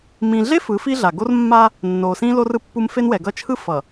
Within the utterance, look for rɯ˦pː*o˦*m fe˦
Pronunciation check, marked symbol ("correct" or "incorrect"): incorrect